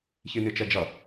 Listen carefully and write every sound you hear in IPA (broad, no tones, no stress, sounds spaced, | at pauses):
ç i n i t͡ʃ ɛ d͡ʒ ʌ